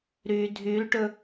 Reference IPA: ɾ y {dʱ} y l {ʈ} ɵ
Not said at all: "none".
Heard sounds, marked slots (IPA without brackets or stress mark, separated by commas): dʱ, ʈ